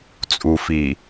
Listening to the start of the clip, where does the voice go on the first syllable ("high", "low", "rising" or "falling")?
low